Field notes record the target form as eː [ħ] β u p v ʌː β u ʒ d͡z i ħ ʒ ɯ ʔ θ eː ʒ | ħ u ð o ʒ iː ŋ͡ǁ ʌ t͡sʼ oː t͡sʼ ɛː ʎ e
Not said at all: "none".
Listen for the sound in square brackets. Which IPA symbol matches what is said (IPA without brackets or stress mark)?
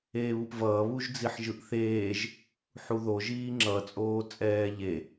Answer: none